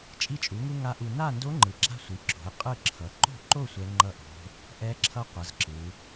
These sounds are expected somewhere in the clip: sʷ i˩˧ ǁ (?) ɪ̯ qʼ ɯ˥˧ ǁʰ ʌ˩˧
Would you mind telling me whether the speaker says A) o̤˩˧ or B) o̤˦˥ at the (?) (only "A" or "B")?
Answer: A